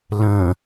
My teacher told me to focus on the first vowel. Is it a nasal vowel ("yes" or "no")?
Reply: yes